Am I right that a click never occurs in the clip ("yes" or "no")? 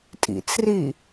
yes